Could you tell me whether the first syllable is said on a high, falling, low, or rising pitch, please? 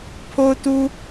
high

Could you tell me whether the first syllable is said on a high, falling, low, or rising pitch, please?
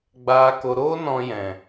low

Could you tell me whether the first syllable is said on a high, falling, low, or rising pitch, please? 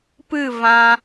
falling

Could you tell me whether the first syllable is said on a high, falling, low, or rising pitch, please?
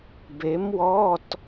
rising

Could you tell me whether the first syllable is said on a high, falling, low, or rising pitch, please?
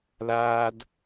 high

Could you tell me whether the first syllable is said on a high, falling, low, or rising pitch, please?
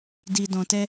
low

